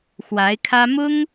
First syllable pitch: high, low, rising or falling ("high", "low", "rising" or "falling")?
rising